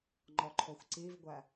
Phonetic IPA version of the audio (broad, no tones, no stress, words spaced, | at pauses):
ŋ͡ǃɔǃʰoxʷǀivɡʷæ